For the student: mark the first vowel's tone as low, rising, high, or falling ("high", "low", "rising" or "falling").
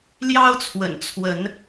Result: high